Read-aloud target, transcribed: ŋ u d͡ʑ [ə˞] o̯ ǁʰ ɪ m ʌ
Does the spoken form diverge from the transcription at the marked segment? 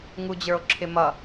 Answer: no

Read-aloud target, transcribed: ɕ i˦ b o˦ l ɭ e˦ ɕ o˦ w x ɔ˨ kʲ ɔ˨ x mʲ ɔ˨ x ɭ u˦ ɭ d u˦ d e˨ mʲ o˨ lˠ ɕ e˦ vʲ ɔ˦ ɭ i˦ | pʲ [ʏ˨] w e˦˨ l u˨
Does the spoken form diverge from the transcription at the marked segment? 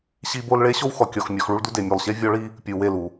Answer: yes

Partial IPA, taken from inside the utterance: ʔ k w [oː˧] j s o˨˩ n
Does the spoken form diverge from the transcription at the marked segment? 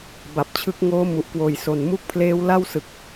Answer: yes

